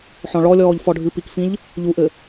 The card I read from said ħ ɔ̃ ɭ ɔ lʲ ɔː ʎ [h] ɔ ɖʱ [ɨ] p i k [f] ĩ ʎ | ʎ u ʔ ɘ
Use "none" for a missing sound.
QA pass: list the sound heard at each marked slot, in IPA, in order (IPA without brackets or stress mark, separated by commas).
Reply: f, ɨ, f